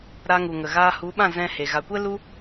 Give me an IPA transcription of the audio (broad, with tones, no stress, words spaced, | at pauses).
ɾa˧ŋu˨ŋə˨ɣaː˧ hu˨˦ɓã˦˨ zɛ̃˧he˨ ɣa˨kʷɛ˦ lu˦